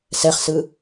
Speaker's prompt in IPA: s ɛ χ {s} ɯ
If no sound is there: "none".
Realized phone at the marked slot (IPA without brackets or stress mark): s